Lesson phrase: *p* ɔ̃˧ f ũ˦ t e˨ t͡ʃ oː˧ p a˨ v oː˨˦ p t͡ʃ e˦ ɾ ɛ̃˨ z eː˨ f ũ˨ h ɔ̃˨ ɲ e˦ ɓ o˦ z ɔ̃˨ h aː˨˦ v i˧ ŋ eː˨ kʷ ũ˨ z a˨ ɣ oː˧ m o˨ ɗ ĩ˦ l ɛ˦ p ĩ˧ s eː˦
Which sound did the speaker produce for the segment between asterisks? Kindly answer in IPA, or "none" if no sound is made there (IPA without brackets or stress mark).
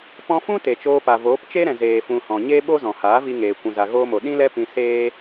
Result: p